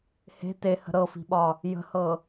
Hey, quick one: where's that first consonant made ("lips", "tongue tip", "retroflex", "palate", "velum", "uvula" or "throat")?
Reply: throat